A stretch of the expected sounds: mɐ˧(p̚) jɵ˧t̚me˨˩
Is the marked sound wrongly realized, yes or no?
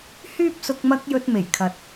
yes